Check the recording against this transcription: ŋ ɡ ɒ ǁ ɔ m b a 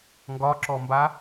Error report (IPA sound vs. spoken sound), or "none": none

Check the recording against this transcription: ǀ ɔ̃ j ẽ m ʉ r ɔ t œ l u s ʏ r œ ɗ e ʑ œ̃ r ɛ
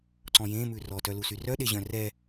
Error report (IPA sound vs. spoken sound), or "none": ʏ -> y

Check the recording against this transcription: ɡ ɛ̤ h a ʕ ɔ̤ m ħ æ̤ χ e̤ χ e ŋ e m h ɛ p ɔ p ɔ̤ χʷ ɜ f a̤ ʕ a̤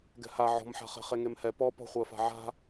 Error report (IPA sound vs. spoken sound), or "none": æ̤ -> a̤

